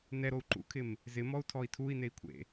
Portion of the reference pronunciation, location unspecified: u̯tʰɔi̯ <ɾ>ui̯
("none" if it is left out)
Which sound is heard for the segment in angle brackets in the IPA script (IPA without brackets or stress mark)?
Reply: tʰ